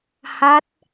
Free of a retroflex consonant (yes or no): yes